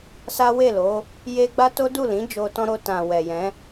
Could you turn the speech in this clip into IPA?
s a˦ w e˦˨ l o˨˦ | j e˦ ɡ͡b a˦ t o˦ d u˦˨ l ĩ˨˦ d͡ʒ o˧ t ɔ̃˦ ɾ o˧ t ã˨ w ɛ˨ j ɛ̃˨˦

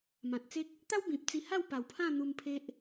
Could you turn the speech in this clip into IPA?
m ã˨ t̚ t͡s e˦ k̚ | t̪ a˦ w b ĩ˨ p̚ t͡s i˧ h a˥˧ w p a˨˩ w pʰ ã˥˧ n̪ u˧ m pʰ e˦ ʔ

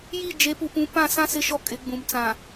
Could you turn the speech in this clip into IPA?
j i˦˨ d͡ʒ e˨˦ p u˨ p ũ˨˦ p ã˦˨ s ã˦ s ɪ˦ ʃ ɔ˦ kʼ ɪ˨˦ ɡ͡b ũ˨ m t͡s ã˨

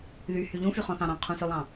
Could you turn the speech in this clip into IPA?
ð y h y ʎ ũ f y χ ɔ̃ θ ɑ̃ ɾ ɑ̃ qʰ ũ s ø lˠ ɑ̃

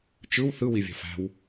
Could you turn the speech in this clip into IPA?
t͡ʃ ɯ w θ ɯ w i vʲ ɑ̤ f æ̤ w

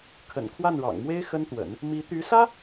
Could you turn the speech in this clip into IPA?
kʰ ə̰˨˩ n kʰ w a˥˩ n ɻ ɑ̰˨˩ ŋ m w e˥ ɪ̯ x ə˥ n t̪ w ə̰˨˩˦ n | m i˧˥ t̪ y˧˥ s ä˥

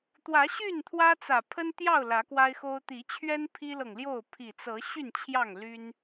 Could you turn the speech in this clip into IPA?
t̪ w ä˨˦ ɕ y˥˨ n t̪ʰ w ä˦ t͡s ä˨˩ pʰ ə˦ n t̪ j ɑ˥˨ ʊ̯ l ä˨˦ k w a˦ ɪ̯ x o˦ ʊ̯ t̪ i˨˦ t͡ɕʰ ɥ ɛ˦ n pʰ i˦ l ɤ˨ ŋ l j o˥˨ ʊ̯ pʰ i˨˩ t͡s ɤ˨˦ ɕ y˥˨ n t͡ɕʰ j ɑ˥˨ ŋ l y˦ n

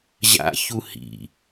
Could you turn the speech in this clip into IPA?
ʑ a̰ ç u h ḭ

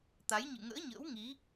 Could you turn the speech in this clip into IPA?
t̪ a˨˦ j ɲ ɨ̰˧˨ ŋ ə̰ː˧˥ ɲ ə̰ː˧˥ w ŋ i˨˦

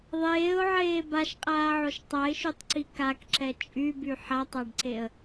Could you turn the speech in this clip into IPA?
ðˤ eː ʊ̯ ʕ eː b a ʃ qʼ aː ʕ o ʃ tˤ a ɪ̯ ʃ y tˤ ǀ i k a k ǁ ɛ t͡ʃʼ y b y ħ a tˤ a ɖ ǀ e ə̯

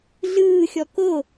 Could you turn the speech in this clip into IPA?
ɮ ɯː xʲ ɔ k o

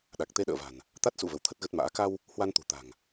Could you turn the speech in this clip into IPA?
ɗ a˨˩ k̚ t̪ e˧ ɗ ə̰ː˧˨ v a̤˨˩ n | t̪ a˦˥ t̚ s ṵ˧˨ v ə˨˦ w t̪ʰ ə˦˥ t̚ ɣ ə˦˥ t̚ m a̰ː˧˥ k a˧ w | h w a˧ n t̪ ṳ˨˩ t̪ a̤˨˩ ŋ

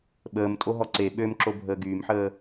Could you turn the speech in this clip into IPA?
ɓ əː m tʼ o ɦ ɔ ǀ e ɓ ø m ǁ o bʱ əː ɡ yː m ħ əː

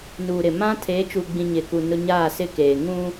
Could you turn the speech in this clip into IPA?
n uː˨ ɾ ɪ˨ m ã˦ tʰ eː˨˦ t͡ʃ u˨ ɡ͡b ĩ˨ ɲ ɪ˨ k u˨ n ʊ˦ ɲ aː˦˨ s ɪ˦ k eː˨ ŋ ũ˦

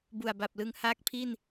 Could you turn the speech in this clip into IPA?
b u˨˩ a̯ b a˨˩ p̚ l ɯ˧ ŋ h aː˦˥ k̚ pʰ i˥˩ n

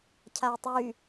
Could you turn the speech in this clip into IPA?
cʰ a i̯ tˤ y

